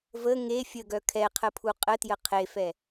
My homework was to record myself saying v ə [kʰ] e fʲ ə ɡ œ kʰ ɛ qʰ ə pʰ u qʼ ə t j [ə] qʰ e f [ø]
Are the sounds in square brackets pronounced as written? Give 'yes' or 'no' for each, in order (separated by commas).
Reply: no, yes, no